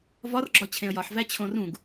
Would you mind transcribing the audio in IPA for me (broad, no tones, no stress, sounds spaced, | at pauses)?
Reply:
v ɒ r ɡ͡ǁ ɒ t͡ɕʰ ẽ ə̯ j ɒ ħ v æ t͡ɕʰ õ r ũ ɡ